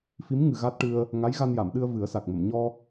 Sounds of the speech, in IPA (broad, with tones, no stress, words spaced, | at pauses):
fi˧˥mŋɨ˨˩ ɣa˦˥t̚ʈɨ˧ə̯ | ŋa˧˥jɣa˧nja˨˩˨mɗɨ˧ə̯ vɨ˨˩˦ə̯sa˨˩k̚mə˨˩˨m ɲɔ˧